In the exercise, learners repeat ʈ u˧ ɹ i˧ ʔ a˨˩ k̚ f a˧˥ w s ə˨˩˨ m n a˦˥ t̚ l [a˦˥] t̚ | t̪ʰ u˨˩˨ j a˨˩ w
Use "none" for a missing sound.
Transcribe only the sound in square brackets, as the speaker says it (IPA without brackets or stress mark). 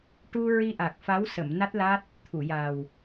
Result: a˦˥